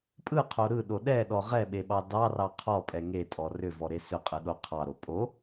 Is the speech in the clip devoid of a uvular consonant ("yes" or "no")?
no